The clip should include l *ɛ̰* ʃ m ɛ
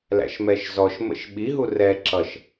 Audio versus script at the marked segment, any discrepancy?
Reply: yes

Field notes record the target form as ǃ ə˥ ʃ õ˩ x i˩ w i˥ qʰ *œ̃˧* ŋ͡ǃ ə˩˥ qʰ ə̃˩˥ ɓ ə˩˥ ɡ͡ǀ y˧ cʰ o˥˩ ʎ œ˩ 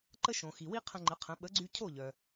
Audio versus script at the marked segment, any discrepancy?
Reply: yes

